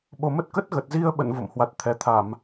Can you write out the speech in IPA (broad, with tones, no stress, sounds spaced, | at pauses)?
ɓ o˨˩ m ə˦˥ t̚ k ə˦˥ t̚ ɣ ə˨˩ t̚ z i˧ ə̯ ɓ ə̰˧˨ n v o̰˧˨ m h w a˨˩ t̚ t̪ʰ ɛ˨˩ t̪ʰ a˧˩˨ m